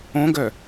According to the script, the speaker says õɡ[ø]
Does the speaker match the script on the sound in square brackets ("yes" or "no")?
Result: no